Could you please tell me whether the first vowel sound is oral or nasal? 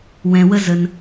nasal